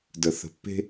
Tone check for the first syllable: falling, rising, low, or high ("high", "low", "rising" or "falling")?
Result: low